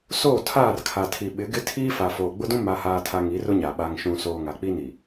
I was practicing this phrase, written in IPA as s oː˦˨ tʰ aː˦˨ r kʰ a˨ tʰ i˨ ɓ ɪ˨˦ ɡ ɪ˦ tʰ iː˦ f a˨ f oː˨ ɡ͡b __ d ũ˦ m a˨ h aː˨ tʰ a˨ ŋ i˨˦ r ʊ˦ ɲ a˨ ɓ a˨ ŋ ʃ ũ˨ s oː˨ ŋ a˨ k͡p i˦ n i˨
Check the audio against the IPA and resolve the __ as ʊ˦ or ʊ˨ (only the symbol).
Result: ʊ˦